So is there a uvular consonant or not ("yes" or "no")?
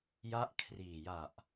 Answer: no